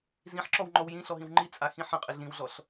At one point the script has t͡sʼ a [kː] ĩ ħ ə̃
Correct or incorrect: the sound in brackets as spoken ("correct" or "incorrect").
incorrect